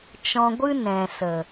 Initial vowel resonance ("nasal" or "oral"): nasal